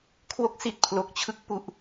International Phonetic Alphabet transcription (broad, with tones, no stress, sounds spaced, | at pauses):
kʰ w o˦˥ k̚ s i˨˩ t̚ pʰ l o˨˩ k̚ t͡ɕʰ ɯ˥˩ k̚ p u˨˩ ʔ